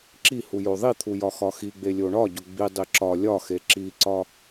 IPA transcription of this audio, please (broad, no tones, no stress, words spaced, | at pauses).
ǁihu joðˤit̪ʰu jɒxɒxiɡ͡be lʲoɳɒɟo ɡ͡bidˤi ǁɒ lʲɒxe ǁiǀɒ